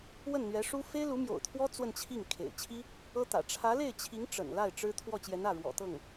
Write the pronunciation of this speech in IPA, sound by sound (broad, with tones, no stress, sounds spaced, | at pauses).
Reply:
w ə˥˩ n n̪ ɥ ɛ˧˥ ʂ u˥ f e˥ ɪ̯ l u˧˥ m j o̰˨˩ ʊ̯ t̪ʰ w ɔ˥ t͡s w ə˥˧ n t͡ɕʰ i˥˩ ŋ kʰ ḛ˨˩ ɪ̯ t͡ɕʰ i˥ | ɤ˥ t̪ ä̰˨˩ ʈ͡ʂʰ ä˧˥ l e˥˩ ɪ̯ t͡ɕʰ i˧˥ ŋ ʈ͡ʂ ə̰˨˩ n l a˥˩ ɪ̯ ʈ͡ʂ ɻ̩˥ t̪ʰ w ɔ˥˩ t͡ɕ j ɛ˧˥ n ä˥˩ ɻ w ɔ̰˨˩ t̪ ɤ˥˩ ŋ